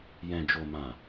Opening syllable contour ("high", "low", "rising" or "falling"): low